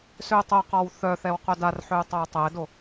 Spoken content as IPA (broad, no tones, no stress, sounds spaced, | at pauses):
s ø u̯ tˤ o q ɔ w θ œ θ ɛ w q œ d a r ħ ø u̯ tˤ o u̯ tˤ ɛ d o